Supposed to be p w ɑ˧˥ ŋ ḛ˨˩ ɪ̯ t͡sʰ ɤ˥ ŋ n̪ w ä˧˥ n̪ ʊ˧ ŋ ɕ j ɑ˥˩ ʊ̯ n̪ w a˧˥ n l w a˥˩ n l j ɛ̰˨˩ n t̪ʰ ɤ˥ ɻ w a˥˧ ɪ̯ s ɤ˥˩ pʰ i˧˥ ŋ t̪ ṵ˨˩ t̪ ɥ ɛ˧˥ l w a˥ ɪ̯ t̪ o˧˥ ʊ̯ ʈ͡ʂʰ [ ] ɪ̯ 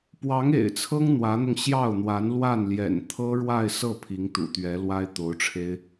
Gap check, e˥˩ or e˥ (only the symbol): e˥